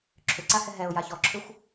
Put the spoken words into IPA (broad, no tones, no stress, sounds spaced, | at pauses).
ǁʰ ʏ ǀ a h ɛ ɦ ɛ ʊ̯ j a ç ɔ ǁʰ ʏ xʷ